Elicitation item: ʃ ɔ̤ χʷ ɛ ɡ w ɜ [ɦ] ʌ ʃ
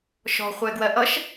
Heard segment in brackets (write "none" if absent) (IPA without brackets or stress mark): ʔ